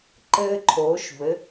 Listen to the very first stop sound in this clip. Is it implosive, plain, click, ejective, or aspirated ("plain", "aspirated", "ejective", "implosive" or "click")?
click